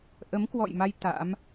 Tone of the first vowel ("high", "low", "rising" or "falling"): rising